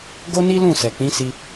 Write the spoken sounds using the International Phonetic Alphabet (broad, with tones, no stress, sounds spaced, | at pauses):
ɡ o˦ n i˦ l ũ˦˨ s ɛ˨ k͡p ĩ˨˦ s i˧